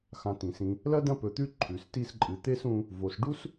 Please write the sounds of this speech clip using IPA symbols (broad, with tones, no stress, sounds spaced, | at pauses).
x ã˨ t ĩ˩ s ĩ˨ | l ɐ˥ d ɐ̃˦ p ɵ˨ t̪ ʉ˦ ǃʰ ʉ˩ s t i˦ s ǃʼ ɨ˨ t̪ e˥ s ũ˦ | v o˨ s ɖ u˥ s